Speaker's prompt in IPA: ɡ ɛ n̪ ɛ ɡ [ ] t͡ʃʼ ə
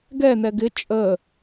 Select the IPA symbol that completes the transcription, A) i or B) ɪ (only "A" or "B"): B